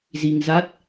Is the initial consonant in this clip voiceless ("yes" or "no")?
no